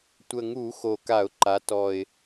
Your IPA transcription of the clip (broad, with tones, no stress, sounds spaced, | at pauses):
tʷ ə˨˩ ŋ u˧˩˧ x o˨˩ k a˧˩˧ ʊ̯ ǃ a˩˧ t ɔ˨˩ ɪ̯